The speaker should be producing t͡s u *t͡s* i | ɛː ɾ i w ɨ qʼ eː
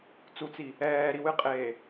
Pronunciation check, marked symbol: correct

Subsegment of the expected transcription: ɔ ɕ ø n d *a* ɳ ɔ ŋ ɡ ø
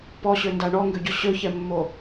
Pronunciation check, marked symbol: correct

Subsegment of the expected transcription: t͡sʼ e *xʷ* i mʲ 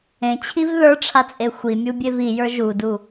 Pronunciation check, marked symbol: correct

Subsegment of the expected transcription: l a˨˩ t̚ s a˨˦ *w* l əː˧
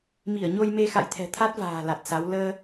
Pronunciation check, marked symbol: correct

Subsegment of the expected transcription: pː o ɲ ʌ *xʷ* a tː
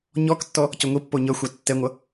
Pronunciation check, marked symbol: correct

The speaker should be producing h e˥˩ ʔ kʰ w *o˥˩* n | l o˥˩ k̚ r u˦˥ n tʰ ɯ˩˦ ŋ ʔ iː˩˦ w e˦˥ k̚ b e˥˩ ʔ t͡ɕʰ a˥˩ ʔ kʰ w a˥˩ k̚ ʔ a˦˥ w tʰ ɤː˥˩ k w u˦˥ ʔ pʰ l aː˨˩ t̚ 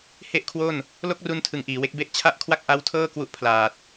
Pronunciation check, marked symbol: correct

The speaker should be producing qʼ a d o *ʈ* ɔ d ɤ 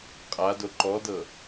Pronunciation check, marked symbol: incorrect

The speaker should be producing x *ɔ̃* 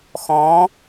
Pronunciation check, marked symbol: correct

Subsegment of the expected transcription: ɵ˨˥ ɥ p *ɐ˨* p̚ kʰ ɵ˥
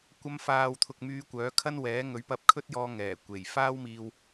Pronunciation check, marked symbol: incorrect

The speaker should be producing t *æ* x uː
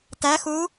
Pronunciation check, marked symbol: correct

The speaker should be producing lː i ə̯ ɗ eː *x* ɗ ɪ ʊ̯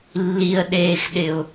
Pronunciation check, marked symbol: correct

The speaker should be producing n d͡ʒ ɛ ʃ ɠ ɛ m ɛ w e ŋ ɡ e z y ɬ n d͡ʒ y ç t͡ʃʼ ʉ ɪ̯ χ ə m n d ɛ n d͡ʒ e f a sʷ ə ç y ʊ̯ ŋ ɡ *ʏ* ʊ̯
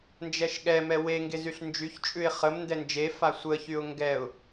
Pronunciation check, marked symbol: incorrect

